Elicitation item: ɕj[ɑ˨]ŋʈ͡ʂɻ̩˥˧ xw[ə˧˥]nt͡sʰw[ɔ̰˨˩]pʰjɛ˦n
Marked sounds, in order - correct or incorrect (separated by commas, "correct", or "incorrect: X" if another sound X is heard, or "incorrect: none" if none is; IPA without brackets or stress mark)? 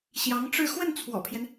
incorrect: ɑ˧˥, incorrect: ə˥˩, correct